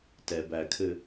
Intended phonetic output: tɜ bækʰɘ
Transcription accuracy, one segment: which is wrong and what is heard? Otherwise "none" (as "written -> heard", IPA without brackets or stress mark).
ɜ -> ɛ